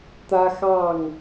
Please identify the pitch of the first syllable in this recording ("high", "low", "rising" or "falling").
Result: high